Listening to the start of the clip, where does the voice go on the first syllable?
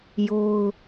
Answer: high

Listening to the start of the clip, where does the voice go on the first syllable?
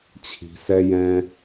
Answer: low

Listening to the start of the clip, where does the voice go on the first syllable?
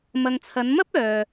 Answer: low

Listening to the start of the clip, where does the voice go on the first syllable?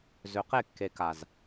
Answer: low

